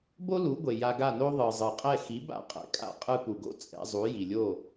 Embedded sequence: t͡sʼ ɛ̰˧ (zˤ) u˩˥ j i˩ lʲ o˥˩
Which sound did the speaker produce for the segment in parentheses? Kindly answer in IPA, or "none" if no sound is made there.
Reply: zˤ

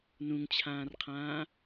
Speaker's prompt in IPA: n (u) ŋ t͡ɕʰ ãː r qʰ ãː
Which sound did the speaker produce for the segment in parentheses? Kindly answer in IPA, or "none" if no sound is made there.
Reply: ũ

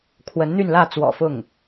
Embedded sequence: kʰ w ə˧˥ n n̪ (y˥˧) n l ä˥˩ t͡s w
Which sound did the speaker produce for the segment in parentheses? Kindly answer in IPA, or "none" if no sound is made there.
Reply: y˥˧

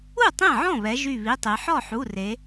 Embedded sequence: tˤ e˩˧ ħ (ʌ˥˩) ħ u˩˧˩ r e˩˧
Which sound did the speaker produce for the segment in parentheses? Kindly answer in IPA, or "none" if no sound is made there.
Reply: ɔ˥˩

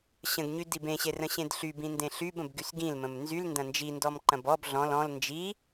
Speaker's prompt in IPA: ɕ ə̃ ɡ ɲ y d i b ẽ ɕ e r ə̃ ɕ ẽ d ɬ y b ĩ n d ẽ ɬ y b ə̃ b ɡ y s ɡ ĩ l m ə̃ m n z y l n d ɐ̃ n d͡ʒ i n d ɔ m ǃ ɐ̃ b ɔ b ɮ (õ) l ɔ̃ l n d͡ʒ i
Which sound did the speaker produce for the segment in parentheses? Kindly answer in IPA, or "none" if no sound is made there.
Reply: ɔ̃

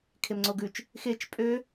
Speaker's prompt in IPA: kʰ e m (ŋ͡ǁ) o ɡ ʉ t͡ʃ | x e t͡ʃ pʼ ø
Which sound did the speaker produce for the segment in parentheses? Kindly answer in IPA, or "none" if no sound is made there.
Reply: ŋ͡ǀ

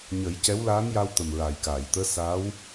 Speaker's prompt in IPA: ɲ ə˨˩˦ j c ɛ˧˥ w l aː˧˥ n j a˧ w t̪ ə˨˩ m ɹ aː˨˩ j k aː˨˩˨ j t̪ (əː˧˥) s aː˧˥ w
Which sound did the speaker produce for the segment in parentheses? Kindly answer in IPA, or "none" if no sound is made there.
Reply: əː˧˥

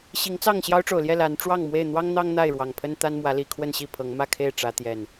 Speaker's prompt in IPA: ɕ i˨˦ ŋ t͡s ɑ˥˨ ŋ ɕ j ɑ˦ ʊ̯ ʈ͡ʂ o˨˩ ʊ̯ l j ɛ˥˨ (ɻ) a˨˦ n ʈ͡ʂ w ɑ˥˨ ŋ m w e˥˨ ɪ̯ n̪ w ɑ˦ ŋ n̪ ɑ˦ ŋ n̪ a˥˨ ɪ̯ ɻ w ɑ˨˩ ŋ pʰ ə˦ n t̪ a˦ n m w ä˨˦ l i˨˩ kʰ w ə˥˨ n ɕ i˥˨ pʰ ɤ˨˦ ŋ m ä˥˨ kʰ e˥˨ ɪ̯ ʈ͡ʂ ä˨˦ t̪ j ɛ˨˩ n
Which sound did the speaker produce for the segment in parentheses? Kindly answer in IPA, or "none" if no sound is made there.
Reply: l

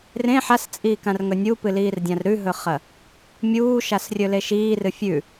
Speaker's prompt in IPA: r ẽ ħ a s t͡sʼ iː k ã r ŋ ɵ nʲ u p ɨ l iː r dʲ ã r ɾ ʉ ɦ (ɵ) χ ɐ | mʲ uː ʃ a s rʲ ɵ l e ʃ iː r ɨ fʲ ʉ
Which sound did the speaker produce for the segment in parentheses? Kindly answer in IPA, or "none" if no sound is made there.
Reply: ɵ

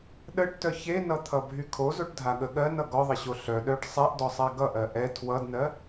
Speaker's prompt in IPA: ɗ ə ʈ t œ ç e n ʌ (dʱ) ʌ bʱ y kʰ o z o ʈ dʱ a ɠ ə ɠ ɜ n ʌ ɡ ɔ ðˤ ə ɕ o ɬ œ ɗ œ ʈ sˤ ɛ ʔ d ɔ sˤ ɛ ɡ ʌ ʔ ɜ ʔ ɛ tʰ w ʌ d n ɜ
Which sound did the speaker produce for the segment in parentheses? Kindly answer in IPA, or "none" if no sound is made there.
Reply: t̪ʰ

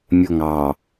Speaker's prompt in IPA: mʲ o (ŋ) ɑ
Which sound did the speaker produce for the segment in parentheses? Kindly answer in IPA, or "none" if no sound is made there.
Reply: ŋ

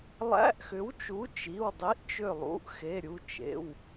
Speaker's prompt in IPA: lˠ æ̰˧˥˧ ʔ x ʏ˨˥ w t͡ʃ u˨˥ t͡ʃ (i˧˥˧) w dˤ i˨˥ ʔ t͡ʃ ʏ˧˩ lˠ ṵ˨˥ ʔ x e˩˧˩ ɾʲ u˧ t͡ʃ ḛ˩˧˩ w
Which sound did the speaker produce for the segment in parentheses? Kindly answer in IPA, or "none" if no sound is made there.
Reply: i˩˧˩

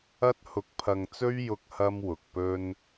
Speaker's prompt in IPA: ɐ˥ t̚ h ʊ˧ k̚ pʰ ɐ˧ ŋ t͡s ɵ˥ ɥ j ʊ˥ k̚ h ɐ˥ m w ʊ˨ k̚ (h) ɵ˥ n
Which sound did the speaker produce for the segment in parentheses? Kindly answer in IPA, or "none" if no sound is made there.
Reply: p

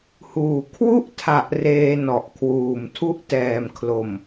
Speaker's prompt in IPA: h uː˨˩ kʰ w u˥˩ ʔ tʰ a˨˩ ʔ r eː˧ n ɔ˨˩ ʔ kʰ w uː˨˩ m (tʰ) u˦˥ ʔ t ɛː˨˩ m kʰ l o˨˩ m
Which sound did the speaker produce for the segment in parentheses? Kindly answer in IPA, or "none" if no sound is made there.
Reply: tʰ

